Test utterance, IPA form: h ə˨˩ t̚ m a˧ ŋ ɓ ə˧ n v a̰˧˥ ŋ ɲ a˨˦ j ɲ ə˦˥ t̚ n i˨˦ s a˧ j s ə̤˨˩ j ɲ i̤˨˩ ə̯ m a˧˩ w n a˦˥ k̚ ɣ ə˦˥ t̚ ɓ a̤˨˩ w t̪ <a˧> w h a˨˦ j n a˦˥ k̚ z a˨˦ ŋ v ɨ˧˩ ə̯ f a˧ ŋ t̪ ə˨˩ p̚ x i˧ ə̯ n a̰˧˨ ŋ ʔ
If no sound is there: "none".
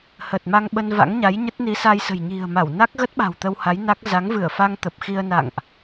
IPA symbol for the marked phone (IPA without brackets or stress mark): ə˧